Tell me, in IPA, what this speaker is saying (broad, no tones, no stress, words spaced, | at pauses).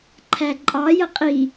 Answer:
ǃʰæǃʼɑjə qʼi